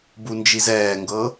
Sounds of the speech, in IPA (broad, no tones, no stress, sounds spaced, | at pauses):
b u n d͡ʒ i z ɛː ŋ ɡ ɤ